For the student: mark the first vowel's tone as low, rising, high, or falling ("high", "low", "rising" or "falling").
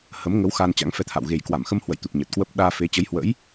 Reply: rising